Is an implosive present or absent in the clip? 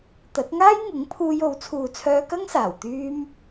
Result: absent